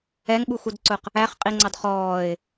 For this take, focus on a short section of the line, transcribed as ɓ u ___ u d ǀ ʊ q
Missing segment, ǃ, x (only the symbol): x